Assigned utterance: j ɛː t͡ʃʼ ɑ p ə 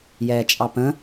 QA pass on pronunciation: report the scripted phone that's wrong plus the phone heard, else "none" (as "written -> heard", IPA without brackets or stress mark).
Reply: ə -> ə̃